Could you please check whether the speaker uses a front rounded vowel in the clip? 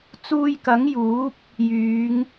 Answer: yes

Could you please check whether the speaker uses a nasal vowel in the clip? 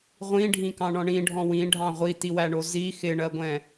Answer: yes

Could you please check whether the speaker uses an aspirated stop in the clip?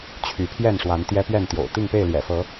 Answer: yes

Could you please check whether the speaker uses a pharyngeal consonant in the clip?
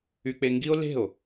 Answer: no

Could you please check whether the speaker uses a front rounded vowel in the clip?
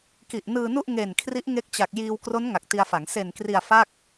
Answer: no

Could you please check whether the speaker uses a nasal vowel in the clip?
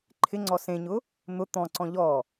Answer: yes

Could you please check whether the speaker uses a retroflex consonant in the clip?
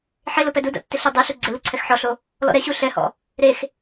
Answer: no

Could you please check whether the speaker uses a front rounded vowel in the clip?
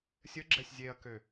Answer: yes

